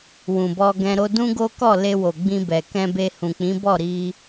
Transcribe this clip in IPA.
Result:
w ũ˨ b ɔ˧ ɡ ɛ̃˧ ɾ o˦ d ũ˦ ɡ o˦ k ɔ˦˨ l e˧ w o˨ ɡ͡b ĩ˧ b ɛ˨ k ɛ̃˧ b e˧ h ũ˨ k͡p ĩ˨˦ b ɔ˦˨ ɾ i˧

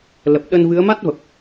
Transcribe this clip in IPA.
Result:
l ə˨˩ p̚ ɗ ə˧ n v ɨ˨˦ ə̯ m a˦˥ t̚ v ə˨˩ p̚

